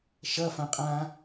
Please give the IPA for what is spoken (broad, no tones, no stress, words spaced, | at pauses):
ʃɐfãqʼãː